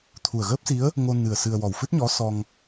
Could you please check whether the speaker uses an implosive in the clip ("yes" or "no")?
no